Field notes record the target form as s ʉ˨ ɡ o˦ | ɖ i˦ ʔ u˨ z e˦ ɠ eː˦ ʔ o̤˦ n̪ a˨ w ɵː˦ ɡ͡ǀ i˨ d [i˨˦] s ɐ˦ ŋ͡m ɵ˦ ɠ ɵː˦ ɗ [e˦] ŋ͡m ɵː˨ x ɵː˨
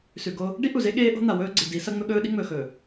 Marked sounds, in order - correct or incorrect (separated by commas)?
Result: correct, incorrect